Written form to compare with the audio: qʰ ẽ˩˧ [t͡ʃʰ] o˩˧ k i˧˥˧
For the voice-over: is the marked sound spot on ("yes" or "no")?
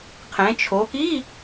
yes